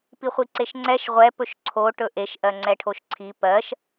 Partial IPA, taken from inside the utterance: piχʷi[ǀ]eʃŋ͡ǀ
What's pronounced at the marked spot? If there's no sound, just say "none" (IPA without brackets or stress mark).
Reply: ǀ